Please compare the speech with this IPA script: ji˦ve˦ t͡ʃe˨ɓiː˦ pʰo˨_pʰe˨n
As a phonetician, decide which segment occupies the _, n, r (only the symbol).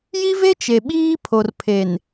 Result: r